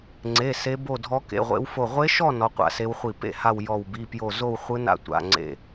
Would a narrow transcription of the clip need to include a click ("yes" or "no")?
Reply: yes